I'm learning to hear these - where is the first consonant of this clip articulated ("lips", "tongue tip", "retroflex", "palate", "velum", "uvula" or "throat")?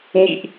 palate